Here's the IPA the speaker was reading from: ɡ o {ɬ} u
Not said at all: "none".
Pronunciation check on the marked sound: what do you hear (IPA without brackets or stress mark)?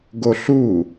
ɬ